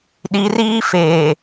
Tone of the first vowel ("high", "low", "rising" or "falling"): rising